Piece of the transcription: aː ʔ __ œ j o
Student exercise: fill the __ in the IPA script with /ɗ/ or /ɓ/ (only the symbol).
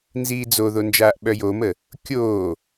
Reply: ɓ